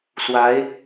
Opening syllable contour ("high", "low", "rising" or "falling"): rising